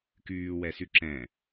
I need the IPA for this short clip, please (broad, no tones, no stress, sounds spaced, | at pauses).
k yː w ɛ s y ǁ ɛ̃